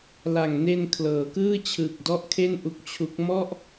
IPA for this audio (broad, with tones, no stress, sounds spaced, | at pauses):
l a˨˩ ŋ n e˧ n kʰ l ɤː˩˦ k ɯː˥˩ t͡ɕʰ ɯː˨˩ k̚ d ɔ˥˩ ʔ kʰ e˥˩ n ʔ u˦˥ k̚ t͡ɕʰ u˦˥ k̚ m ɔ˥˩ ʔ